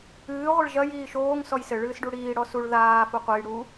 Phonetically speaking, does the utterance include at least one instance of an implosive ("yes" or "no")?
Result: no